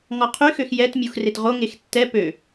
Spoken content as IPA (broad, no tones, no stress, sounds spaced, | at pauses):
ŋ ɔ qʰ y x ø x j ɛ t mʲ u x r e t ʁ o ŋ e x tː ɛ p ø